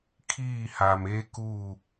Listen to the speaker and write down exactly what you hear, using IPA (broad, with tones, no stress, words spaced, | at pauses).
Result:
kʰiː˦˨haː˨meː˦ kuː˦˨